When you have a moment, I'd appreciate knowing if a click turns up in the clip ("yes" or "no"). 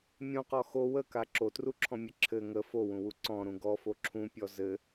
yes